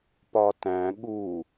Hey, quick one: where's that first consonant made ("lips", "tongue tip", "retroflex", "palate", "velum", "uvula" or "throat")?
lips